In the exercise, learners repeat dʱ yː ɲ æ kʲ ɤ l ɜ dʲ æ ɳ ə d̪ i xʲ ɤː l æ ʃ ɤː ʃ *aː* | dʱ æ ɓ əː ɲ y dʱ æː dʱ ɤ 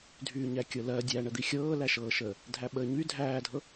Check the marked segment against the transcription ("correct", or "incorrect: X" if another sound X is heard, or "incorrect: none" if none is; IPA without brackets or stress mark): incorrect: əː